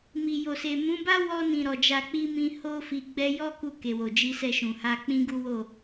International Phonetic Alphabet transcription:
m i˨ j o˨ s e˨ m ũ˨˦ b a˦ w ɔ˧ n ĩ˨ ɾ ɔ˨ d͡ʒ a˧ k͡p i˦ m ĩ˧ h o˦ f i˧ ɡ͡b ɛ˦ j ɔ˦ k u˧ k e˨ w o˨ d͡ʒ i˧ s ɛ˧ ʃ ũ˨ h a˧ k͡p ĩ˦ ɡ u˦ w o˦˨

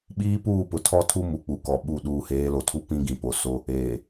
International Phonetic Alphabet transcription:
ɓ iː˦ p uː˦˨ p ʊ˨ tʰ ɔ˦ tʰ u˦ m u˨ k͡p u˨ k ɔ˨ ɓ u˦˨ ɗ uː˨ h eː˨˦ l o˨ tʰ u˦ p ĩ˦ ɡ ĩ˨ p o˨ s o˦ | eː˨

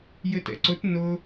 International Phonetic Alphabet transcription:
j ɘ t ɛ̰ ǀ ʊ t n ʊ

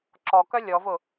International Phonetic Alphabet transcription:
ǁ ɔ k œ lʲ ɔ v ʊ

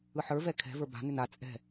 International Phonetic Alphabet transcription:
ɯ ħ ə˞ v ɛ kʰ ɛ̤ v ə˞ b a̤ n ʏ n a t͡sʼ ɛ̤

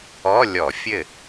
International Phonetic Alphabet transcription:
ɔ˧˥˧ lʲ ɔ˧˩˧ fʲ ɘ˥˩

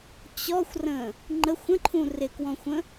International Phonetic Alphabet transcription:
t͡ɕ ɔ xʷ r ə̃ | ŋ͡ǃ ə xʷ ə̃ ǃʰ ũ r ɪ k w ɔ̃ xʷ ə̃

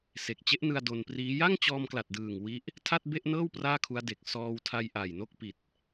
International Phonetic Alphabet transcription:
s e˨˩ k̚ t͡ɕ e˦˥ ʔ n ɯ˧ a̯ d o˧ n p r iː˦˥ j a˥˩ ŋ t͡ɕ ɔː˧ m k l a˨˩ t̚ d ɯː˨˩ ŋ w i˦˥ ʔ | tʰ a˥˩ t̚ b e˥˩ ʔ n ɤː˥˩ w p r aː˥˩ kʰ u˦˥ a̯ d e˨˩ k̚ s ɔː˧ w tʰ a˧ j ʔ a˨˩ j n o˥˩ k̚ p i˨˩ t̚

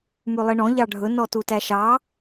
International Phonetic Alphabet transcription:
m ʉ lˠ i ɳ ɔ̃ ʎ ɑ ɖʱ ɵ n ɔ t u t æ ʃ ɑ

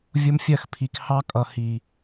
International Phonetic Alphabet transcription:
vʲ ʊ˧ m fʲ ɜ˧ x pʰ i˨ k h ɑ˧ kʼ ʌ˨ h i˨

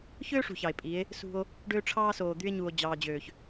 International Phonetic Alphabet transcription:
ç øː˦ ʂ ṳ˨ ç ɑ˨ e̯ pʼ i˨˦ e̯ | s ṳ˦ o̯ | ɖ øː˦ ʈ͡ʂʰ ɑː˦ s oː˨ d̪ y˦ e̯ ɲ u˨ o̯ d͡ʑ ɑː˦ d͡ʑ øː˦ ç

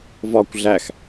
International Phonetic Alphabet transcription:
v ɒ kʷ ɮ æ x

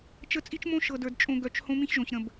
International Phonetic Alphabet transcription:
t͡ʃ ə˦ t͡sʼ i˦ t͡ʃ m õ˦ ʃ ɤ˨ d ə˞˨ d t͡ʃʼ õ˨ ɡ œ˨ t͡ʃ h õ˦ m ĩ˦ ç ʒ õ˨ ç ɾ ə̃˨ b

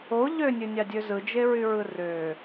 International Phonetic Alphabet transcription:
o ʎ ø nʲ ø nʲ ɑ dʲ ø z ɯ d͡ʒ e ɹ y ɹ ɯ r ø

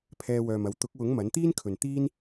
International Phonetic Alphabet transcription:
pʰ ɛː˧ w œː˨ m ɐ˨˥ w t̪ ʊ˨˥ k̚ w ʊ˨˥ ŋ m ɐ˨˥ n t̪ iː˥ n kʰ ɵ˨ n t̪ iː˥ n

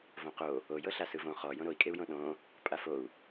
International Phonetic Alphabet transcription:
v õ q o | o j ɤ ɬ a s ɯ v õ χ ɔ j õ ɾ o i̯ kʼ e u̯ j õ ɗ õ | pʼ a f o u̯

